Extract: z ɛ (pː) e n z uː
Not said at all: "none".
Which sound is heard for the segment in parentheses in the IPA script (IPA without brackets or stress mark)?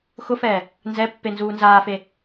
pː